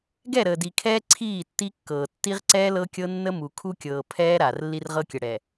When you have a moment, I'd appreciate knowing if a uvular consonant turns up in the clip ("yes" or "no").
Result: yes